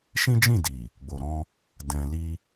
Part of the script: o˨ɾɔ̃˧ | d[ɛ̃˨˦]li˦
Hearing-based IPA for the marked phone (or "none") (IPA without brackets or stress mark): ɛ̃˧